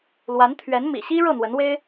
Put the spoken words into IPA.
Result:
lwa˧˥nt̪ʰɥɛ˧˥n mḭ˨˩ɕi˥ ɻɤ˥˩n̪wə˧˥nwe˥ɪ̯

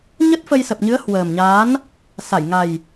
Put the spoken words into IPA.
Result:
ɲə˦˥t̚fə˧jsə˨˩p̚ɲɨ˨˦ə̯ hwəː˨˩mɲaː˨˦n | sa˧˩jŋa˨˩j

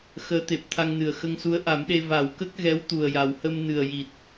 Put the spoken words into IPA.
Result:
xəː˧˥t̪e˨˩p̚t̪ʰa˧ŋnɨ˨˩ə̯ xə˧ŋsu˧˥ə̯ʔa˨˩˦mɗe˧ va˨˩˦wkə˦˥k̚ɣɛ˧˥w t̪u˨˩ə̯ja˨˩whə˧m nɨ˨˩ə̯ji˨˩t̚

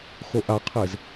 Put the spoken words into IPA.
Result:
xoʔaqʰez

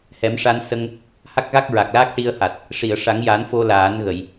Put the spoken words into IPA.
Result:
hɛ˨˩˦mʂa˧n sə˧ŋ | ha˦˥k̚ɣa˦˥k̚ ɹa˨˩k̚laː˦˥k̚ ʈi˧ə̯ha˨˩t̚ | ʂi˨˩˨ə̯ʂa˨˩˦ŋja˨˩˦n fo˧laː˨˩˦nɣə˨˩˨j

